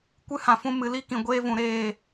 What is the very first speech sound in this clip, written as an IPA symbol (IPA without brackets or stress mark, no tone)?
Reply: kʷ